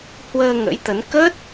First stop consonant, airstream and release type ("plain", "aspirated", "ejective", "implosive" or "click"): plain